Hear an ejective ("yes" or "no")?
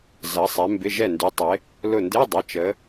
no